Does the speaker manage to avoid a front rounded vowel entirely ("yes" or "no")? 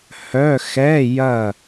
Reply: no